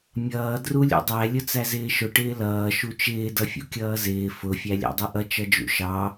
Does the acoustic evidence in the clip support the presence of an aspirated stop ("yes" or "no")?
no